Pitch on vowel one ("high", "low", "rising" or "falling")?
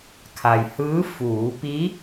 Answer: low